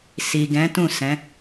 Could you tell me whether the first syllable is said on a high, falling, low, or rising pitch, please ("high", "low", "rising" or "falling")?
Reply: low